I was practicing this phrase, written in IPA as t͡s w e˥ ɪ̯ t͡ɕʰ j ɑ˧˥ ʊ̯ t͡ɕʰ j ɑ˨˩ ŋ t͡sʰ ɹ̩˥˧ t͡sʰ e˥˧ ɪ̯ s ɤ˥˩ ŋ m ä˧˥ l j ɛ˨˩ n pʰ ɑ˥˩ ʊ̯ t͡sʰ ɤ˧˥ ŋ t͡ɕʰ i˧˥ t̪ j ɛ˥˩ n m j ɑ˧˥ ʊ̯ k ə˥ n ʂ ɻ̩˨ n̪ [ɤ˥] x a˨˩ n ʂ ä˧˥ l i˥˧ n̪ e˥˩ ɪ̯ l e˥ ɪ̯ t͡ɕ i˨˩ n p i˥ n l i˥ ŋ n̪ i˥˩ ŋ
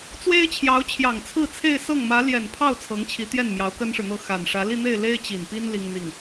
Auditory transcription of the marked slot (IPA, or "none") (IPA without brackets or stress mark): ɤ˥